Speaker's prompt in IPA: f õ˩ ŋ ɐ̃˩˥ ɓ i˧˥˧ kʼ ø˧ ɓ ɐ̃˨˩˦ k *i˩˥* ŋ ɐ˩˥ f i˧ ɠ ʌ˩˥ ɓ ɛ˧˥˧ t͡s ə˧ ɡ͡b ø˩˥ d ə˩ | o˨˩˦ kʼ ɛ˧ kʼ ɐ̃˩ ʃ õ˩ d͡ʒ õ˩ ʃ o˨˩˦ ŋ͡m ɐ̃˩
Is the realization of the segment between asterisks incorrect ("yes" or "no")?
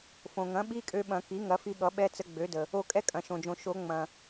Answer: no